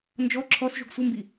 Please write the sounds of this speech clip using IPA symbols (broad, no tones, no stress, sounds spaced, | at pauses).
n d͡ʒ ɔ ǁʰ ɔ s ʒ u ɡ sʷ ə m b i